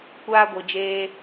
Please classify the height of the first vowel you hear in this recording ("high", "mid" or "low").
low